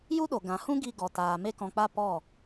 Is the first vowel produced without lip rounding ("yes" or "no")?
no